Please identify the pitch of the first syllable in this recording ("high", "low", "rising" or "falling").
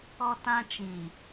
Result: high